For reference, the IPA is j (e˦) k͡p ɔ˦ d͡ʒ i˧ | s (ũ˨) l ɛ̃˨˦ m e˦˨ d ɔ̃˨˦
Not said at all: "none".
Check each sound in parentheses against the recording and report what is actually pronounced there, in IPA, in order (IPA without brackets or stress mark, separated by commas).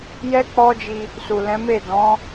ɛ˦, u˨